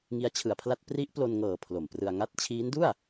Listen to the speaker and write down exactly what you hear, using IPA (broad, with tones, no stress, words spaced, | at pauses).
ŋi˦˥a̯t͡ɕʰɯ˨˩a̯pʰla˥˩t̚ pri˦˥ʔplo˧nŋɤː˨˩ pʰlo˨˩mprɯ˧a̯ŋa˥˩t̚ t͡ɕʰiː˦˥ndu˥˩a̯